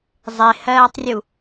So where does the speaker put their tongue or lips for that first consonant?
tongue tip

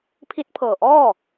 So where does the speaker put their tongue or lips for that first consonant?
lips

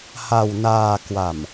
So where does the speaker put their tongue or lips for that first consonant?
throat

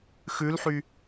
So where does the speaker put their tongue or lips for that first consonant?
velum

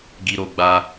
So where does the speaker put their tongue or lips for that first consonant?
velum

